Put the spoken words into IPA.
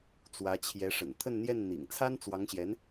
t͡swä˧˥ t͡ɕʰjɛ˧˥ʂə̰˨˩n t̪ʰə˥˧nn̪jɛ˥˩nn̪ḭ˨˩ŋ t͡sʰa˥nt͡swɑ˧˥ŋɕjɛ˧˥n

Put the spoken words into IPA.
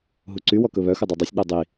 ɦuǀy wɔkɵβœ xudˤɑdˤœsʲ ɗɛdˤi

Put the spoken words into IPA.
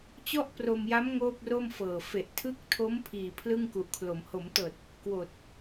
t͡ɕɔ˥˩ʔpro˧mja˦˥m ŋoː˥˩p̚ro˥˩mfɤː˨˩ fe˨˩ʔtʰɯ˦˥k̚tʰo˦˥m pʰiː˨˩ pʰlɯ˥˩ŋku˨˩ʔkʰlo˩˦m ho˩˦mtɤː˨˩t̚ | kwoː˨˩t̚

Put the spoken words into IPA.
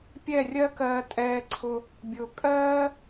pʲɛ˦˨rʲɜ˦kɜː˧tʼɛː˧ ǀʰʊ˧ | bʲʊː˧ kʼɜː˦

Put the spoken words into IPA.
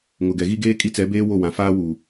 ŋʊ˨ɡɛ˨ɣi˦ ɡeː˦kʼi˦t͡sɛ˨˦ beː˦ wo˦˨wã˨faː˦wu˨

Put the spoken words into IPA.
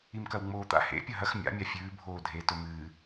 imkɐwŋ͡moːt̪a̰ hḛ pʲɐɦɐx mʲa̰ mʲafʲʉː bʱoːdʱe tɵmɨː

